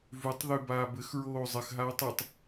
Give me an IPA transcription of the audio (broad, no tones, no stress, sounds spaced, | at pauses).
v ʉ tˤ ð ʉ b aː b ɘ x ɹ oː zˤ ɘ x ɦ aː tˤ ɘ tˤ